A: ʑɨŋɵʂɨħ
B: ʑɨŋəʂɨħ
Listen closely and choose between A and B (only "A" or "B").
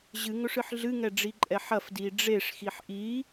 A